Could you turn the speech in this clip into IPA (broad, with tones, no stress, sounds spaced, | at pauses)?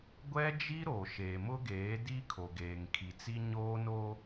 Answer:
ɡʷ ɛ˦ d͡ʒ i˦ ɾ o˨ ʃ eː˨ m ʊ˦ ɡ eː˨˦ d i˦ kʰ o˨ ɡ eː˨ ŋ kʰ i˨ t͡s i˦ ɲ oː˦ n oː˦